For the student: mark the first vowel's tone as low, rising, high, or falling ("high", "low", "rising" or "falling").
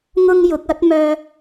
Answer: high